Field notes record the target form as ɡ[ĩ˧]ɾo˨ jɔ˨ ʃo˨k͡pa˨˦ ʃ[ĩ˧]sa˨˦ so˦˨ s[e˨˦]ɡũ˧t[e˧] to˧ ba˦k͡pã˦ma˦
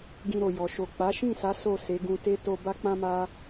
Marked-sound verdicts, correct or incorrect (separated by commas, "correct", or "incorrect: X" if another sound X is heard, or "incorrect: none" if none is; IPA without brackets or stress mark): correct, incorrect: ĩ˦˨, correct, incorrect: e˦